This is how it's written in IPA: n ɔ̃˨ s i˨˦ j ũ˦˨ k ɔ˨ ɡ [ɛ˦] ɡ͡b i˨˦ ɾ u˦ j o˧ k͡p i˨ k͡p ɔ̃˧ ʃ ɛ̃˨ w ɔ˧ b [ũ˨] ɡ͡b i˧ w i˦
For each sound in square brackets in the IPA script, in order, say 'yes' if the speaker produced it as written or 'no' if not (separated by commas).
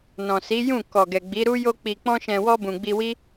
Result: no, yes